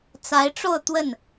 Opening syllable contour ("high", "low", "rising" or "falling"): rising